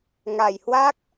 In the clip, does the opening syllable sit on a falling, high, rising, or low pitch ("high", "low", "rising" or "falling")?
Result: low